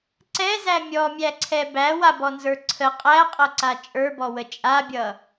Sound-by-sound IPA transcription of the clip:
ǀɛzæ mʲɔmʲæǀʰɛ bæwabɔnzə˞ ǀʰə qʼæqʼʌǀa t͡ʃʼə˞bɔwə t͡ʃʼabʲʌ

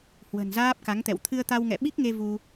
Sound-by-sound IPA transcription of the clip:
hwə̤˨˩nzaː˦˥p̚ka˨˦ŋt̪ɛ̰˧˨w t̪ʰɨ˧ə̯t̪a˧wŋɛ̰˧˨ ɓi˦˥k̚ŋe˧ vu˧

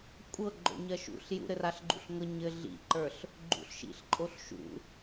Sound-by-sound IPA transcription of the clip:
kʷʼɤɡ͡ǃo̰ ɲɜʃṵɬ jṵɾɘraɬ ɡ͡ǃṵɬŋɤ ɲɘ ɮḭǃə˞ɬ | ɡ͡ǃṵɬʃḭɬǃʼoɬ ʃṵ

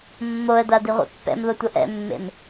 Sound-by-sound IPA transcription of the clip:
mːoə̯da diʁʷḛpːɛ̰mðo tʷʌʔɛ̰mːḛm

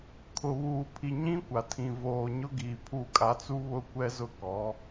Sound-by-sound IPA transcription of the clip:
kʰʊ˨βuː˨pʰi˨ ɲĩ˦kʷa˨tʰĩ˨ voː˨ɲʊ˦ ɡiː˨pʰu˦˨kʼa˦ t͡su˦ βʊ˦kʷɛ˦zʊ˦kɔ˨˦

